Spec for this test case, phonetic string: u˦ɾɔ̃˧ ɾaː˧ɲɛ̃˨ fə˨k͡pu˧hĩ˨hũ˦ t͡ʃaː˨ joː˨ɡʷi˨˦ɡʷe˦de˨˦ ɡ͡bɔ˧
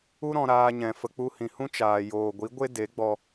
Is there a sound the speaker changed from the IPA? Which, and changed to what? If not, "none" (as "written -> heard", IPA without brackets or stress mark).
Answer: none